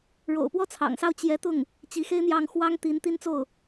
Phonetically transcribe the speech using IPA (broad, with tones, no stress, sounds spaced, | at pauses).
ɻ o̰˨˩ ʊ̯ p w ɔ˥˩ t͡sʰ ɑ̰˨˩ ŋ s ɑ˥˩ ʊ̯ t͡ɕ j ɛ˧˥ t̪ ʊ˥˩ ŋ | t͡ɕ i˧˥ x e˥ ɪ̯ n̪ j ɑ˥˩ ŋ x w ɑ˥ ŋ t̪ i˧˥ n t̪ i˥ n t͡s o˥˩ ʊ̯